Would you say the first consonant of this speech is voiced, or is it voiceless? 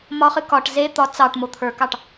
voiced